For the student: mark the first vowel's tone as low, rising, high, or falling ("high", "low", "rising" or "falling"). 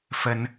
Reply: high